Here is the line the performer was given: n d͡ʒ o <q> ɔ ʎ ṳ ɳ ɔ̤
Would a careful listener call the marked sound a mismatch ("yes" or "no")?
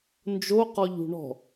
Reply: no